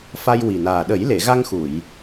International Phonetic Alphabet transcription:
f a˧ j w i˨˩ n aː˨˩ ɗ ə˨˩˦ j l e˨˩˨ ɣ a˧ ŋ x u˨˩˨ j

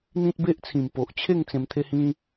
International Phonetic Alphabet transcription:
n̪ ĩ˦ t̚ b e˦ ʔ t͡sʰ ĩ˨˩ m p o˨ ʔ t͡ɕʰ e˥˧ ŋ t͡s ẽ˧ m t̪ʰ e˦ h ĩ˦

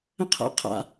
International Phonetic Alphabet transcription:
ə̃ qʰ a̰ qʰ a̰

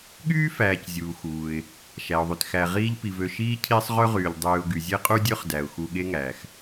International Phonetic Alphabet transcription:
ɠ yː˥ f æː˩ c zʲ uː˩ x uː˩ ɪ̯ | ʃ æ˩ ʊ̯ ðˤ y˩ t x æ˨ ʁ iː˦ ʎ p i˩ v ø˨ ʃ iː˥ cʰ i˦ sˤ ʁ ø˥ ʁ yː˩ ʎ dˤ yː˨ ʊ̯ ɡ y˩ zʲ e˥ qʼ u˥ dʲ ø˥ χ d æ˩ ʊ̯ x u˨ ɠ e˦ ŋ æ˩ x

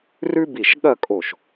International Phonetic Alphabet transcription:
r ʉ˥ b i˧˩ ʃ ɠ ɐ˥˧ kʼ o˧˩ ʃ

